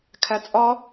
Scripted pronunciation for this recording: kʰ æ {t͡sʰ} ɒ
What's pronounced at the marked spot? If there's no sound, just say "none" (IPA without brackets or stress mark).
t͡sʼ